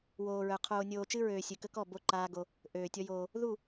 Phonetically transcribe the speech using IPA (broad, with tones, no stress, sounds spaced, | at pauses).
w oː˨ ɹ œ˨ qʰ oː˨ nʲ oː˨ t͡ʃ ɨ˦ ɹ øː˨ sʲ ɨ˨ k ə˦ k ɔ˦˨ b o˦ ǃ aː˦ ɡ o˦ | ʔ øː˨ tʲ ɔ˦ j oː˦ | ð u˦˨